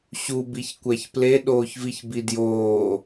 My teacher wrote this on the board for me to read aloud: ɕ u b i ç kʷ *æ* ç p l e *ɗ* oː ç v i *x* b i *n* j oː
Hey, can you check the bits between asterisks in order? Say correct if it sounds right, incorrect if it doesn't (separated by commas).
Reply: correct, correct, incorrect, incorrect